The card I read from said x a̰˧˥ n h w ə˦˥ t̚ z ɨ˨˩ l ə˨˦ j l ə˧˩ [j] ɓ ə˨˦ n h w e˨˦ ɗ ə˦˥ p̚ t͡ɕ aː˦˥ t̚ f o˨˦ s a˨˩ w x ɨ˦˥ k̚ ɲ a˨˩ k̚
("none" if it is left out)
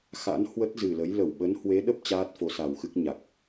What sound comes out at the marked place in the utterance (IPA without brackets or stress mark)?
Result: w